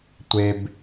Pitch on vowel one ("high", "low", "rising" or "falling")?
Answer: low